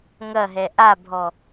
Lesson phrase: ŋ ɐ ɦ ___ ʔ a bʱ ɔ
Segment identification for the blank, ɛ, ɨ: ɛ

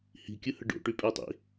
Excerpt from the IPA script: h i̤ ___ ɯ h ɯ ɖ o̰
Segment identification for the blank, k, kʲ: kʲ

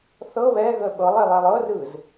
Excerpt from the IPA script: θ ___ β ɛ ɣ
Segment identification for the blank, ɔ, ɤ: ɤ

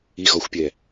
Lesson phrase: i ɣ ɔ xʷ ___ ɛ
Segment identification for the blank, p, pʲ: pʲ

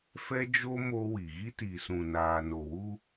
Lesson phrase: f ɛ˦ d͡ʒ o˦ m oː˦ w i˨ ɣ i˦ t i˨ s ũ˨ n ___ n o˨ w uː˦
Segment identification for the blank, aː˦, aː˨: aː˨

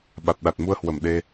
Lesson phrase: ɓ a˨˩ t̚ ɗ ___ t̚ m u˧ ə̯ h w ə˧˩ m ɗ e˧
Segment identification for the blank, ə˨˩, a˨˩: a˨˩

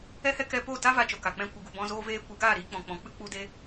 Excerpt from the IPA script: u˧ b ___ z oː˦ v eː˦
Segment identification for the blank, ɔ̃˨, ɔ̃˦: ɔ̃˦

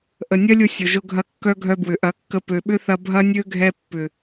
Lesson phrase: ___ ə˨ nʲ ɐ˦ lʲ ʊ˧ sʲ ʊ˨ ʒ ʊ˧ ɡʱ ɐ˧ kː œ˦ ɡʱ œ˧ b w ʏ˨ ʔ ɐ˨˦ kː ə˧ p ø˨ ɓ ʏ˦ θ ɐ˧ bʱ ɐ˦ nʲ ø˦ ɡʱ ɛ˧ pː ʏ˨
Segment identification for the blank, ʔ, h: ʔ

